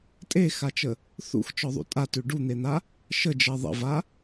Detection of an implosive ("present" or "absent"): absent